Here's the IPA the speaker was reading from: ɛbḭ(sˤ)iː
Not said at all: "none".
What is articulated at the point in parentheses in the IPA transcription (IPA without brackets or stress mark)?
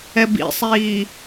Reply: sˤ